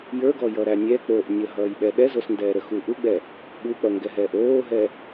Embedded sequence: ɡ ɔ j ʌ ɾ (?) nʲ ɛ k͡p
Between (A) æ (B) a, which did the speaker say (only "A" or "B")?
A